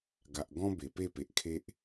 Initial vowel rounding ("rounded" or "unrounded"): unrounded